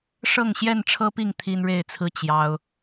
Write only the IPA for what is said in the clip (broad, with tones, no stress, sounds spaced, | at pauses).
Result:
ʂ ɤ˥˨ ŋ ɕ j ɛ˥˨ n ʈ͡ʂʰ ɤ˦ p i˥˨ ŋ t̪ʰ i˦ n ɻ e˥˨ ɪ̯ t͡sʰ ɹ̩˦ t͡ɕ j ɑ˦ ʊ̯